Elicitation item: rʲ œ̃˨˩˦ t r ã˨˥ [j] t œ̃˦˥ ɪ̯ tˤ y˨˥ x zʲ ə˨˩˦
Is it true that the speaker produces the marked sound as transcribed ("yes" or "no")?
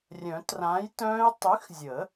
yes